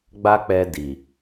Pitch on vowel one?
high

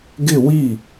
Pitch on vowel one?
falling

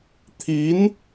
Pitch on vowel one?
rising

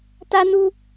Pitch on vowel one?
high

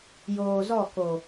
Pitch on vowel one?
low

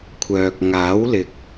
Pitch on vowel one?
low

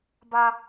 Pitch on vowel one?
high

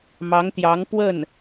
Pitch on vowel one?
rising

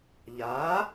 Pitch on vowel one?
rising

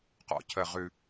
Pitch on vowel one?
high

